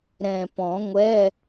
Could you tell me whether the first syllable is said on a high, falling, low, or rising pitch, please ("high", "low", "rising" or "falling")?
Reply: low